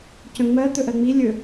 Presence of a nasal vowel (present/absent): present